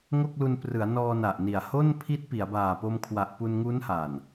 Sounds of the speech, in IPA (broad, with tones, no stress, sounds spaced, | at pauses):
ŋ o˥˩ k̚ l u˧ n p r ɯ˩˦ a̯ n ɔː˧ n a˨˩ ʔ n i˨˩ a̯ h o˥˩ n pʰ i˦˥ t̚ p i˩˦ a̯ b aː˨˩ p o˧ m kʰ w a˨˩ ʔ p u˧ n ŋ u˦˥ n h a˨˩ n